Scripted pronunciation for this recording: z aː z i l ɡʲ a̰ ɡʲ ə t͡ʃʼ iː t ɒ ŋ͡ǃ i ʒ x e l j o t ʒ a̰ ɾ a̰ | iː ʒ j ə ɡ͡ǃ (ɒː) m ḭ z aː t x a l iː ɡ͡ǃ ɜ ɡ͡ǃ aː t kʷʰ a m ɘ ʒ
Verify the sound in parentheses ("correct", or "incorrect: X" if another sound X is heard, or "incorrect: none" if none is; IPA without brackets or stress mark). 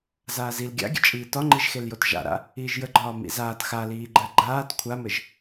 correct